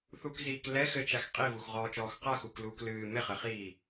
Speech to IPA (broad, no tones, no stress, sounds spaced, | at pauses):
θ u k z iː k l ɛ x ɘ t͡ʃ a x qʼ i v u x ʁ ɔː t͡ʃ ɔː x q a x u k l uː k l ɨː m e χ ɘ χ iː